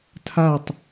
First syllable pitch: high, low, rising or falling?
falling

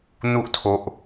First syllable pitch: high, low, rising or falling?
high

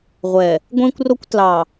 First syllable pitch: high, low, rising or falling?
low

